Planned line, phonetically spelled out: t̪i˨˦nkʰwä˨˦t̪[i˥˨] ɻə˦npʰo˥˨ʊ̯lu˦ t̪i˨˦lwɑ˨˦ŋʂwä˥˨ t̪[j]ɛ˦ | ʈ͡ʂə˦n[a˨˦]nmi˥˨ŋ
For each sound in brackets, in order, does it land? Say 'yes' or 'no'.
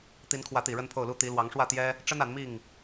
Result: no, yes, yes

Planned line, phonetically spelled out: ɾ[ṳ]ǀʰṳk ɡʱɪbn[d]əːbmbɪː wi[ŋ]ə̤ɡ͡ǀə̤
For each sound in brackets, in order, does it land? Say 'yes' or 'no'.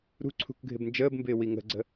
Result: yes, no, yes

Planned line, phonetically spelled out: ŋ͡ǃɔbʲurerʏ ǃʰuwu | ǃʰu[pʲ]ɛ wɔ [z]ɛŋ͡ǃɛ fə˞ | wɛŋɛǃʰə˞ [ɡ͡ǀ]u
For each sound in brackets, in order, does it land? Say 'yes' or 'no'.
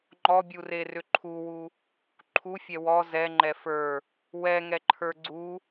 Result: no, yes, yes

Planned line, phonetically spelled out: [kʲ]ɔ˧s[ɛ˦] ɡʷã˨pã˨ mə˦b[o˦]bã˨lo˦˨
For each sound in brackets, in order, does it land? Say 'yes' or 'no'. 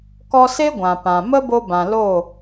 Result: no, no, no

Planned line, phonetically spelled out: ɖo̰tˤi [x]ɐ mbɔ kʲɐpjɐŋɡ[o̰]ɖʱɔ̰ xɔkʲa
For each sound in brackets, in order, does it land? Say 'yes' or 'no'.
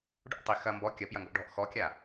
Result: yes, no

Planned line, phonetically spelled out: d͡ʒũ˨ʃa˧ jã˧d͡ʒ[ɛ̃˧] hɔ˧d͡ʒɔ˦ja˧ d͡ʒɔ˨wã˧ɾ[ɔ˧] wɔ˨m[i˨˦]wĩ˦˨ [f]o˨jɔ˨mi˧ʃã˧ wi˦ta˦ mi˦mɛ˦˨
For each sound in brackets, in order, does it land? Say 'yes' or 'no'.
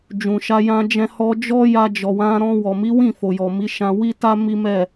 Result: yes, no, yes, yes

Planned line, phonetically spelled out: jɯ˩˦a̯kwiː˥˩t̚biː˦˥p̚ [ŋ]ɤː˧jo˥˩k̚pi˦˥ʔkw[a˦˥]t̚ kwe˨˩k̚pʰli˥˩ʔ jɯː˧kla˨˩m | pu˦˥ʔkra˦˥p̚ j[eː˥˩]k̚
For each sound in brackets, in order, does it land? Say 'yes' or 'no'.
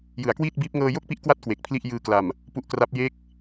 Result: yes, yes, no

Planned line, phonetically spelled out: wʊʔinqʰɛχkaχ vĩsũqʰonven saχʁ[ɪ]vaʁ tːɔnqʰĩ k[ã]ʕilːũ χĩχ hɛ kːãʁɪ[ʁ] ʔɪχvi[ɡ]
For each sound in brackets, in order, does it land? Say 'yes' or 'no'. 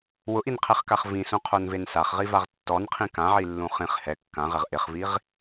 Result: no, yes, yes, no

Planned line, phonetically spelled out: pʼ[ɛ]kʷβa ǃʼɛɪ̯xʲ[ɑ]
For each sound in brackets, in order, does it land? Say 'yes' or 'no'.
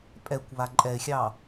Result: yes, yes

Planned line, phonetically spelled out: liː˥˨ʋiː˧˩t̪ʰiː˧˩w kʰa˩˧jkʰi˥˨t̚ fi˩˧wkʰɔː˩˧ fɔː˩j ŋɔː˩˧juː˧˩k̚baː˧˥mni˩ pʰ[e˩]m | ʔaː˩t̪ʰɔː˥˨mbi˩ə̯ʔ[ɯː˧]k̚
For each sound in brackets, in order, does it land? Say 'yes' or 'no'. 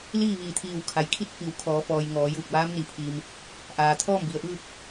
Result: no, no

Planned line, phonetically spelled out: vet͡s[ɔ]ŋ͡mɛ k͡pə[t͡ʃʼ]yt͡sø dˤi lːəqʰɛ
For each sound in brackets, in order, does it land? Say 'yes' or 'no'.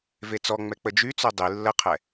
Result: yes, no

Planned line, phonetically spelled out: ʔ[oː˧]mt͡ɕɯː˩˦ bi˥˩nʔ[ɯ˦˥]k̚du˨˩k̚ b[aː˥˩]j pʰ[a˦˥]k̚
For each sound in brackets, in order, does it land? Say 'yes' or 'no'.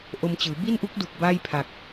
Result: no, no, yes, no

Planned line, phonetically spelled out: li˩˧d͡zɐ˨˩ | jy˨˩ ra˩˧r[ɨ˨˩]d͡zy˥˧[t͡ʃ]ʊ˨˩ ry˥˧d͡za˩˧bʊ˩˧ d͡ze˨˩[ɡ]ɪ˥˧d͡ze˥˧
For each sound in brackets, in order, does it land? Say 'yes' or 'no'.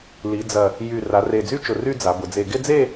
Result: no, yes, yes

